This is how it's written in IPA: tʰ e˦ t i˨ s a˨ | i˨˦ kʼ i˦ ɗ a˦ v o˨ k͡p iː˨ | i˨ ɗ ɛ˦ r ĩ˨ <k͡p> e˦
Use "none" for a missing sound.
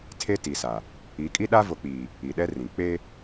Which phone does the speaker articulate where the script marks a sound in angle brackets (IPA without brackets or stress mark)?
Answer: k͡p